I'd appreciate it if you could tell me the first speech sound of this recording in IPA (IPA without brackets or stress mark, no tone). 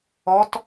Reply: ɔ